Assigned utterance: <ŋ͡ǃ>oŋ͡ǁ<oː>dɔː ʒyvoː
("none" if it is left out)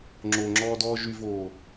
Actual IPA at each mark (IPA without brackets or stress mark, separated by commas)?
ŋ͡ǁ, ɔː